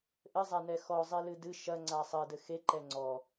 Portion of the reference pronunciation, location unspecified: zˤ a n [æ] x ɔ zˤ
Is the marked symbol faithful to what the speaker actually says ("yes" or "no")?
no